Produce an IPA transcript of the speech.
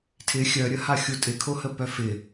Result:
tʰ ɪ xʲ œ ɾʲ ə h a xʲ u tʼ ɪ kʰ o h ə p œ f ɪ

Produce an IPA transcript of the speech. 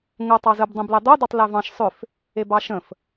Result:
ŋ ə tˤ ɑ z ə b dˤ æ̃ b l e dˤ o d ɑ tˤ l æ v ɑ̃ ʃ sˤ ʏ f | e b ɑ ʃ ə̃ f

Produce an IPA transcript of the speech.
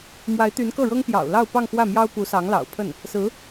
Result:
m w a˧˥ ɪ̯ t̪ y˧˥ n k ɤ˥˩ ɻ ɤ˥ ŋ p j ɑ̰˨˩ ʊ̯ l ɑ˥˧ ʊ̯ p ɑ˥˧ ŋ x w ä˥˩ m j ɑ˥ ʊ̯ p u˧˥ s ɑ˧˥ ŋ l ɑ̰˨˩ ʊ̯ pʰ ə˥˩ n | s ɹ̩˧˥

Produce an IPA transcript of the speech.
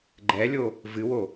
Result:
ɡ͡ǃ ɛ lʲ o | v ɨ w o

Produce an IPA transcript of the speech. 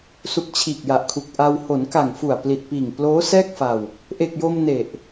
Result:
s u˨˩ k̚ t͡ɕʰ iː˨˩ k̚ j a˨˩ ʔ kʰ u˨˩ k̚ ʔ a˧ w h o˩˦ n k a˨˩ ŋ f u˨˩ a̯ p l i˨˩ t̚ p iː˨˩ ŋ p l oː˦˥ s ɛː˥˩ k̚ f a˧ w | ʔ e˨˩ k̚ j o˧ m n e˨˩ ʔ

